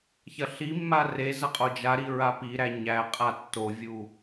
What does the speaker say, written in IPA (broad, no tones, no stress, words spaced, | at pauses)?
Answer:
çɐɬimːa re zɐqʼod͡ʒaɾi ɹapiɾæ ɲæqʼa tːovʲu